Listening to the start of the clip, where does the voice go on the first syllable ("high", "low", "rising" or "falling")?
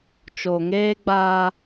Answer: low